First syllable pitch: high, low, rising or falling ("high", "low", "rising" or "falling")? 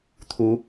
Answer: rising